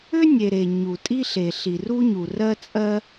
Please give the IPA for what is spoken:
ʏ˥nʲe˩ ɾe˩ ɲu˩ tʼi˥ɬe˩ɬi˩ ru˥ɲu˩rɜ˥ t͡sʼɜ˥

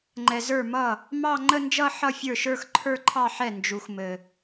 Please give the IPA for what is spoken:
ŋ͡ǃɛ˨zə˞˥˩mʌ˥˩ | mɑ˥˧ ŋ͡ǃə˥˧nd͡ʒʌ˥˧ ħʌ˥˧fʲə˞˥˩ʃə˞˥˧xǃʰə˞˥˧ ǃʰɑ˥˧ħɛ˥˩ nd͡ʒu˨xmɘ˨

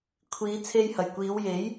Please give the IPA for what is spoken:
kʷʰiː˨˧t͡sʰe˧jhɐ˨˩j kʷiː˨˧wje˨˥j

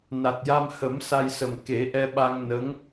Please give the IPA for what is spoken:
na˨˩t̚ja˧m hə˨˩˦m sa˧jsə˨˩m ke˨˩˦ʔɛ˧ɓa˧ŋ nə˧˥ŋ

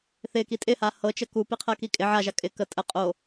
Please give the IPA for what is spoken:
θɪki tʼɪha hɤt͡ʃə kupiqʰɜki kʼɪ ʕaʒa kʼɪ kə tʼə qʼo

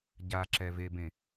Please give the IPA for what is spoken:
ɟaǁɛvebẽ

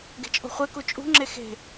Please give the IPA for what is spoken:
ɡe̤t͡ʃʼo̤χʷeku t͡ʃʼṳŋ͡ǁe xe̤

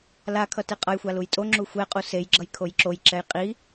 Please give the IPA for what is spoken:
lakʰʌ teqʼʌjxʷa lujtʼoŋ͡ǁu xʷɛqʼu sejɡ͡ǁʌj kʰojǁojǁɛj qʼi

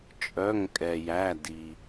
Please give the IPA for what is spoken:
t͡ʃʼœ˩˧˩ŋkʼɛ˩jæ˩˧˩di˩

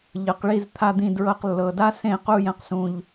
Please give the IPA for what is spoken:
ʎɤ˨qɭi˧z t̪ʰa˧d̪ĩ˧dɹɤ˧q lːɤ˨da˦sẽ˦˨ qu˧jɛ̃˨qsũ˨ʎ

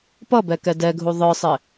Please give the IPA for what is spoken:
pʌbɛ kɛdɛɡʱu ðˤə˞sˤɪ

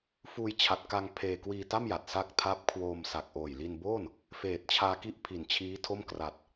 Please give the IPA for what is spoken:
fuː˧jt͡ɕʰa˨˩t̚ka˧ŋ pʰeː˧ kwiː˧ta˥˩mja˨˩t̚ sa˥˩k̚ tʰa˦˥p̚kʰwoː˧m sa˨˩k̚ʔoː˨˩jli˧nboː˥˩n | feː˨˩t̚t͡ɕʰaː˧ki˥˩ʔpʰi˨˩n t͡ɕʰiː˦˥tʰo˥˩m kra˨˩t̚

